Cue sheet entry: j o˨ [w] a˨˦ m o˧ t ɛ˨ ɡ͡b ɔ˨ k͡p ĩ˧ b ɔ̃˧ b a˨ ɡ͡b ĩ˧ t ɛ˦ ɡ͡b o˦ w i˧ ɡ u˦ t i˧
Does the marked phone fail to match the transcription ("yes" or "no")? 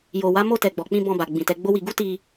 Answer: no